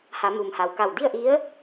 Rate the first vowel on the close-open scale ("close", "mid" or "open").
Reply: open